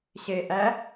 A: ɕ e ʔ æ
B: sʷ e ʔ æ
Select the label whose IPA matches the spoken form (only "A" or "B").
A